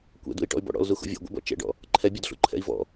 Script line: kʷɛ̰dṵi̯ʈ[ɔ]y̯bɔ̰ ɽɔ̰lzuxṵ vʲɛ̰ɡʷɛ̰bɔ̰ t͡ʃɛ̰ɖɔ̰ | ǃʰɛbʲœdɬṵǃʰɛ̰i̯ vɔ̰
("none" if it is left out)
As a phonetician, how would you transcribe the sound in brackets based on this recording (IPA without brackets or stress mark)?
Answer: ɔ̰